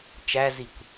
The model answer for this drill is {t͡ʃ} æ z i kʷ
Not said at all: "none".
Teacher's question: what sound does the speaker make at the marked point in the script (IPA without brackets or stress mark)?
t͡ʃ